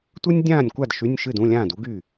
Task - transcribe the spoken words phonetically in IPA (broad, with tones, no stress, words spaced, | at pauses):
tʷɨ˥nʲdʲãː˥˨nʲkʷa˥˨d ʃy˧˥˧nʲʃɨ˥˨dũ˧˥˧lʲãː˥˨d u˥ɡy˥˨